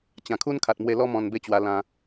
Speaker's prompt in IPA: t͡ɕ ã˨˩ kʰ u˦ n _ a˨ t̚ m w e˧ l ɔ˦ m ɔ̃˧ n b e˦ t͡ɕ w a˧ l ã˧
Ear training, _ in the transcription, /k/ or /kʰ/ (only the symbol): kʰ